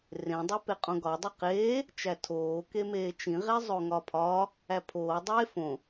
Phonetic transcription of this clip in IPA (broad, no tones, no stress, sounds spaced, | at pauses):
r ẽ dˤ u p e qʼ õ ɡ ɒ dˤ i q eː | t͡ʃ æ tʰ oː k e m eː t͡ʃ ĩ ʁ e zˤ o ŋ ɒ pʰ ɒ | æ pʰ oː dˤ eː f õ